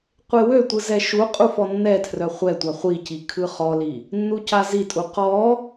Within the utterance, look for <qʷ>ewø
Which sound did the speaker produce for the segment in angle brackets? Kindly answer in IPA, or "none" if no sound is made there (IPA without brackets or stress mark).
qʷ